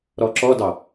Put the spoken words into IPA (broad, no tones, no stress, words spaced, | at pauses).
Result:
ɾɔǁɔdɑ